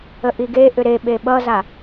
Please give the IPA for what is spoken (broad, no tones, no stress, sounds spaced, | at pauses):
ə ʔ i ɡ e ʔ ʏ ɾ e ɓ e ɓ ʌ z a